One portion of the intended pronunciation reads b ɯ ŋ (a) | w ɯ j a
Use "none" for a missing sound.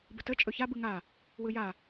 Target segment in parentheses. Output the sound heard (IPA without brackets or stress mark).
a